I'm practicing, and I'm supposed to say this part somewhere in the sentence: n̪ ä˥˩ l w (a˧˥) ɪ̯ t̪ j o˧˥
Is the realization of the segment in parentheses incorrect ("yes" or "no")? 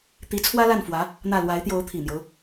no